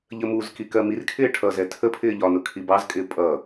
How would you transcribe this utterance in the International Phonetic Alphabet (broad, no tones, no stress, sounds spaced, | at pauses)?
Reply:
ʎ ə m u z k i k ɜ m i r kʰ ɪː ʈʰ ʌ z ɛ tʰ ə pʰ ɪː ʎ ɒ n ʊ kʰ i b ɑ z kʼ ɪː pʼ ʌ